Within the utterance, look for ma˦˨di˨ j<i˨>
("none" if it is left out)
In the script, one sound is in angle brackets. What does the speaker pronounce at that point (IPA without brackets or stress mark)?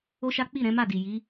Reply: i˨˦